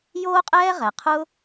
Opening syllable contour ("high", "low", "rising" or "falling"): high